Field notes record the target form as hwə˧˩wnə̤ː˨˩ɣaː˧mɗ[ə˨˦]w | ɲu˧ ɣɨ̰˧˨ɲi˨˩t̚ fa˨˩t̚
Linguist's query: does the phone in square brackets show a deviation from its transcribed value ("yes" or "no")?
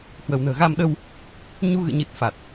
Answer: yes